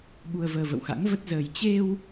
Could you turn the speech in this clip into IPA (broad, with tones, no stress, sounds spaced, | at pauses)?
ɓ u˧ ə̯ v əː˧ v ə̰˧˨ w x a̰˧˥ ŋ v ə˦˥ t̚ z əː˧ j t͡ɕ e˧ w